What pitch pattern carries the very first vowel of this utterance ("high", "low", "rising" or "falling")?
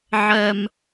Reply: high